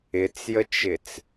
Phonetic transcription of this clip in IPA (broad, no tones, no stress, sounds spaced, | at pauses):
ɪ t͡s j ə t͡ʃ ɪ t͡s